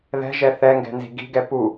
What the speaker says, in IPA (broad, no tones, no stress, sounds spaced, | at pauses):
ð ɛ̤ ʒ ɛ θ ɛ ŋ ɡ ɛ̤ n z i̤ ɡ i̤ ɡ ɛ p u